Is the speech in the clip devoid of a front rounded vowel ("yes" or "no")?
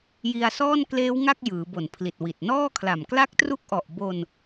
yes